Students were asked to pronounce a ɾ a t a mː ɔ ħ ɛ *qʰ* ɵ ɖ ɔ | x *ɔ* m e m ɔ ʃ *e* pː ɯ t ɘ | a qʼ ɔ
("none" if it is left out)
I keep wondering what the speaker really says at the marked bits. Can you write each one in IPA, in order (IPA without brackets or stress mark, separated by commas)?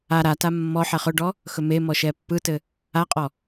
χ, ɵ, ɛ